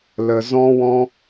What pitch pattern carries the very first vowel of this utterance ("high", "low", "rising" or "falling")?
low